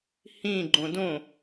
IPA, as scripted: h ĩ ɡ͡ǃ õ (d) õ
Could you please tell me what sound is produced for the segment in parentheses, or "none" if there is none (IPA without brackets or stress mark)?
d